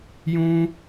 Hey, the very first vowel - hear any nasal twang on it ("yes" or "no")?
yes